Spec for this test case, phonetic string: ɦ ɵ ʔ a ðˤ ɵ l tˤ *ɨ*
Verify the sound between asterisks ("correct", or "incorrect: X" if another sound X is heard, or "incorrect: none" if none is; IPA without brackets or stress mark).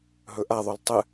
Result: correct